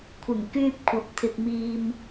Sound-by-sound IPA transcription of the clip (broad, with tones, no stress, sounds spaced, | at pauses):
kʷʰ ɪ˨˩ ŋ k yː˧ p̚ kʷʰ ɐ˨ p̚ t̪ʰ ɪ˨ k̚ m iː˨ m